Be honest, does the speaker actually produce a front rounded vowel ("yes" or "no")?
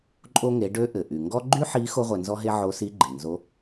yes